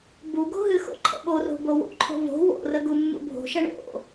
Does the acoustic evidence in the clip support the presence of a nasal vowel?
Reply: no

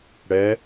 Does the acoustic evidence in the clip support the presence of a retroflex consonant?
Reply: yes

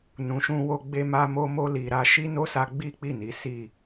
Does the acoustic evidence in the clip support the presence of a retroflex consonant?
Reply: no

